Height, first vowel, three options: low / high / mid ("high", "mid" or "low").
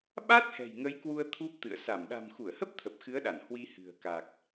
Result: low